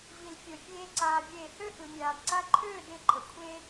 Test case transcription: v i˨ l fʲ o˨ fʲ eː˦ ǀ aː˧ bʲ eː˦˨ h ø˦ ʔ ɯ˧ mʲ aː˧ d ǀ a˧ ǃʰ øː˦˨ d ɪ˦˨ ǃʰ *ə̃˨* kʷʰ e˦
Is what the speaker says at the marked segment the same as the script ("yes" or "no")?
no